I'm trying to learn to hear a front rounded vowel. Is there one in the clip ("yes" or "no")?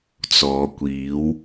no